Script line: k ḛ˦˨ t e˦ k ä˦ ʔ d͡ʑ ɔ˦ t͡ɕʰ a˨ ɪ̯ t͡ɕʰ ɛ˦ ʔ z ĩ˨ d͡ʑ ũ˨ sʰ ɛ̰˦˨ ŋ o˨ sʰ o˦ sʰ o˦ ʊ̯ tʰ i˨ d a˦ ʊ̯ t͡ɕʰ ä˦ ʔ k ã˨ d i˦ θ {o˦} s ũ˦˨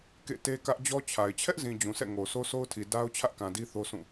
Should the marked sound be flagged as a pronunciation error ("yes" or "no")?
no